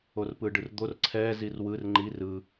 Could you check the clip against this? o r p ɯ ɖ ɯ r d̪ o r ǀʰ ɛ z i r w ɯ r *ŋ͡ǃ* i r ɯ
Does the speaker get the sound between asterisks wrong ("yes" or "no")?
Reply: no